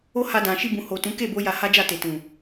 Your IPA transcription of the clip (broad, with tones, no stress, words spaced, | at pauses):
o˦ha˧dã˨ ʃi˧bũ˨ho˨tũ˨˦ ke˦˨bo˧ ja˧ha˦d͡ʒa˦˨te˨ tũ˨